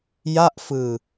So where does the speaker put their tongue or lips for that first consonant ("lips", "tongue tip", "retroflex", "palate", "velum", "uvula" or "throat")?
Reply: palate